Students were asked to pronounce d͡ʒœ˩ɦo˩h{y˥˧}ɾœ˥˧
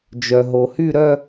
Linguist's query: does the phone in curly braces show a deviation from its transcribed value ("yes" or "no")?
no